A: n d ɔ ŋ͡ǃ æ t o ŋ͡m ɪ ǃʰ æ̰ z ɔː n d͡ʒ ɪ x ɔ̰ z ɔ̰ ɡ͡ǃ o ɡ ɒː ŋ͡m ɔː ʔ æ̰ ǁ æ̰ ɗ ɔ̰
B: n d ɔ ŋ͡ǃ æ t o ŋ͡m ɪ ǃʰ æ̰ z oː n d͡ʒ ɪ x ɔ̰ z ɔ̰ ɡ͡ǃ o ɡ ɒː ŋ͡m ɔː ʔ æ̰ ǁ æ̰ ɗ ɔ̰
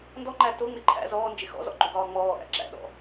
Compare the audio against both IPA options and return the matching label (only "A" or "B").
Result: A